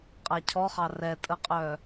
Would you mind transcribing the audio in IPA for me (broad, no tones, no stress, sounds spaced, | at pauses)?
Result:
qʼ a cʰ ɔ χ ɑ r ɛ tʼ ə qʼ œ